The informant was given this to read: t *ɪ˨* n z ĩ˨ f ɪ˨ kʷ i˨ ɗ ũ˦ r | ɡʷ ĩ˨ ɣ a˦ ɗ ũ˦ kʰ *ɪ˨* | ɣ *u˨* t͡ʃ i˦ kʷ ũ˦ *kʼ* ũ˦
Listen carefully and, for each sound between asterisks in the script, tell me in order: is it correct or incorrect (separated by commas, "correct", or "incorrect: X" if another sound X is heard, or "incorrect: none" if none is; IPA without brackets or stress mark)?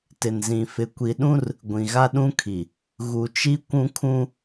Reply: correct, incorrect: i˨, correct, incorrect: kʰ